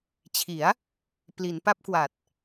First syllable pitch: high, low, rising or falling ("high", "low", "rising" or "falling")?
rising